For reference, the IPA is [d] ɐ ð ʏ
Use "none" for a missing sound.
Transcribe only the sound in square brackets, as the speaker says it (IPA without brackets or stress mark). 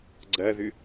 ɡ͡ǀ